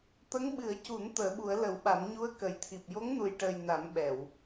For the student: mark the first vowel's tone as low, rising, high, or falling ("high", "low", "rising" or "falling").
rising